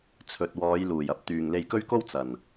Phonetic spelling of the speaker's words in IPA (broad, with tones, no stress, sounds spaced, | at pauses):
t͡sʰ ɵ˨ t̚ w ɔː˨˧ j l uː˨˩ j ɐ˥ p̚ t̪ yː˨ ŋ l e˧ j k ɵ˥ ɥ k o˥ w t͡s ɐ˨˩ n